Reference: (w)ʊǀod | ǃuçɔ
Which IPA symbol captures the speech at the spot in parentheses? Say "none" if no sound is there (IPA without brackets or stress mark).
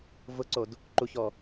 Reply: v